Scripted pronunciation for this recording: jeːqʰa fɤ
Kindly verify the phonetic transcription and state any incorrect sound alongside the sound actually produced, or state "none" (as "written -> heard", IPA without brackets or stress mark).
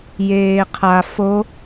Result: ɤ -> o